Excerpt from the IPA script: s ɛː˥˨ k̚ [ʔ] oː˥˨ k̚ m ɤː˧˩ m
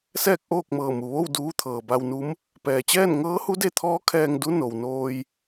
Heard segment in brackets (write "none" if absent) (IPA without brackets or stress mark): ʔ